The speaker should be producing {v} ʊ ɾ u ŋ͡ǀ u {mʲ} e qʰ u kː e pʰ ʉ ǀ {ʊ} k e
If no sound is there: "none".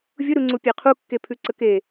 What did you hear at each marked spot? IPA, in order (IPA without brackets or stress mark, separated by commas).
vʲ, pʲ, ə